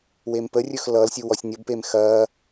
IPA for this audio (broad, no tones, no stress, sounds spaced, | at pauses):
w e m p ə rʲ ɵ x l ʌ l sʲ u w ɔ sʲ nʲ ʌ b p e m x ɐː